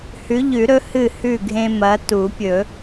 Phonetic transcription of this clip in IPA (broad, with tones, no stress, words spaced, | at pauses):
hʉ˨˦ʎʉ˨˩˦ɾɵ˨˦ hɨ˥˩hʉ˥˩ɡʱẽ˦ mɐ˨˦tu˨˩˦pʲɵ˨˩˦